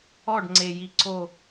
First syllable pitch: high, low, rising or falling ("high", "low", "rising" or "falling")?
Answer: falling